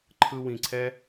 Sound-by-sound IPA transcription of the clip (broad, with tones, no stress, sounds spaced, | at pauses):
ǃʰ ɯ˧ w ĩ˨ ǀʰ ɛ˦